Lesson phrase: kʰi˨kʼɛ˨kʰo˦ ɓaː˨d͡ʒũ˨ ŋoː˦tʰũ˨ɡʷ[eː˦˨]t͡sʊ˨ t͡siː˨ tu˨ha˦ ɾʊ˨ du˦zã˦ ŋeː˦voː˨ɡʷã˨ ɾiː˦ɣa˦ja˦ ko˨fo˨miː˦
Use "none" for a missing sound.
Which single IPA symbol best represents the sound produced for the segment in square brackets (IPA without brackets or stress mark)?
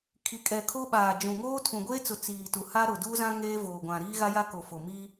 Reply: eː˦